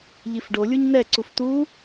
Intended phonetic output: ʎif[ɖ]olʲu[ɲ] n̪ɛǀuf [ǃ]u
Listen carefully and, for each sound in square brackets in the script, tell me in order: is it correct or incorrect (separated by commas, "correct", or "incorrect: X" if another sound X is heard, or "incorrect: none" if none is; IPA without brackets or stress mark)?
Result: correct, correct, incorrect: t̪